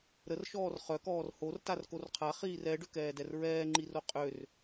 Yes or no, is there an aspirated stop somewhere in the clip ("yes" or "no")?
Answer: yes